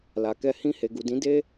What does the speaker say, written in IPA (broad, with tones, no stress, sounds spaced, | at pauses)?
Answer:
l a˨ k ɛ˧ h ĩ˧ h e˨ ɡ u˨ d ĩ˨˦ d e˦